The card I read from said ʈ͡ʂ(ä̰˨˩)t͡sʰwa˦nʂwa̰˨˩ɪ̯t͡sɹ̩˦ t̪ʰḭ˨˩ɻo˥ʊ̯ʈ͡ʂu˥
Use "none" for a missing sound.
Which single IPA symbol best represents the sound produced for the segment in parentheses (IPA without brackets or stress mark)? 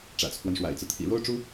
ä̰˨˩